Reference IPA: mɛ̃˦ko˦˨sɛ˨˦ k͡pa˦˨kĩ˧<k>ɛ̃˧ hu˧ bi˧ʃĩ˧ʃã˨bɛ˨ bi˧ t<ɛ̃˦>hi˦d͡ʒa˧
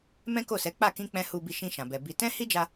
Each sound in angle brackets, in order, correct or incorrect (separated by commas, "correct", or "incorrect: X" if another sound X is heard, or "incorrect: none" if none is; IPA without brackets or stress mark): incorrect: k͡p, correct